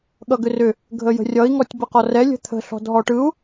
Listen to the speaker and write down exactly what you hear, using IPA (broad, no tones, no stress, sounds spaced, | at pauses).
ɠ ʌ ɡ ʏ r ʏ | ɡʱ ə j ə̤ rʲ ʌ i̯ ŋ ɔ tʲ b ə q ɔ r ɛ lʲ ə̤ t̪ʰ ə̤ ɬ ɔ̤ d ɦ ɔ ʈ ɯ u̯